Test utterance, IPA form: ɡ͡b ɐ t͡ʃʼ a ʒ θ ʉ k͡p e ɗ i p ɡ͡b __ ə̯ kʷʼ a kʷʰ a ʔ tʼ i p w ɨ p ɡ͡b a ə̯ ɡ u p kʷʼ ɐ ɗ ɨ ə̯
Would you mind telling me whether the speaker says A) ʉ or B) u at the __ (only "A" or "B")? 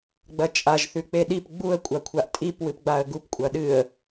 B